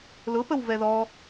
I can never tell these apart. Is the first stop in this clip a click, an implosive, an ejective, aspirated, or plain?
plain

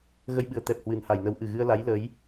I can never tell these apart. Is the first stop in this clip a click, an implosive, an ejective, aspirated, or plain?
implosive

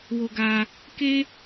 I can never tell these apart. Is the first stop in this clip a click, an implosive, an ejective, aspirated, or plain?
plain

